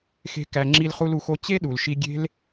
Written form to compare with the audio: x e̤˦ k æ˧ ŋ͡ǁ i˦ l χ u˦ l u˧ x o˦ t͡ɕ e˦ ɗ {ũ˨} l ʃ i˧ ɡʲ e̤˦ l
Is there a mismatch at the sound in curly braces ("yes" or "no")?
yes